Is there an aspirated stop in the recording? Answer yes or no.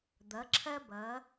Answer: yes